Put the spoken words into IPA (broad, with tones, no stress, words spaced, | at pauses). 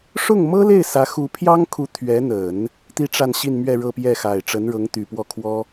ʂʊ˥˩ŋmɤ˥le˥˩ɪ̯ sä˧˥xu˧˥pʰjɑ˥ŋkʰu˧˥ t̪ʰɥɛ˧˥n̪ə˨˩˦n | t̪i˥ʈ͡ʂa˥˧nɕi˥˧nmɥɛ˥˧ ɻɤ˥˧pjɛ˥˩xa˨˩ɪ̯ ʈ͡ʂə˧˥nɻɤ˧˥ŋt̪y˨˩pwɔ˥˩ kʰwɔ˥